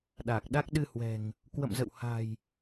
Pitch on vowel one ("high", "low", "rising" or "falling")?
low